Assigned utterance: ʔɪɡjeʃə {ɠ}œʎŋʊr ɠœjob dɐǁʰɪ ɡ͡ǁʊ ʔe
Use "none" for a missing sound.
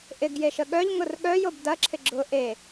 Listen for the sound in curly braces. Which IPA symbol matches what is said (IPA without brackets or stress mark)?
ɠ